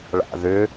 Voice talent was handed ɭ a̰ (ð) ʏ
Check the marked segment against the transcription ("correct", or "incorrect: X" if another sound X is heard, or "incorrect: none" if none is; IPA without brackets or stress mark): correct